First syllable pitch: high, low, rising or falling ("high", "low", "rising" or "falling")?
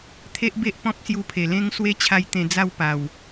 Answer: high